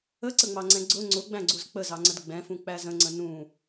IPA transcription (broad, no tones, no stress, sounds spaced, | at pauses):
ə ǀ ə ŋ͡m ɑ ŋ͡ǀ ɛ̃ ɡ͡ǀ ʊ ŋ͡ǀ ʊ ɡ͡b æ̃ ɡ͡ǀ u z k͡p ə z ɑ ŋ͡ǀ ə d ɡ͡b ɛ̃ f ũ k͡p æ z ə̃ ŋ͡ǀ ə̃ n ũ